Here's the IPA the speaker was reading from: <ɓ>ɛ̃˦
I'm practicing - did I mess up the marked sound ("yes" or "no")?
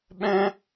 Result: no